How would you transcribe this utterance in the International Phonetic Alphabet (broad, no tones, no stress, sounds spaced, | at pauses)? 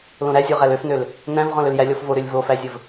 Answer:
l õ ɾ æ zʲ o ʁ æ l ø f n ø l | n æ̃ v ʁ ɔ̃ l ø l j æ lʲ ɔ f v o ɾ ø lʲ v o f æ zʲ ə v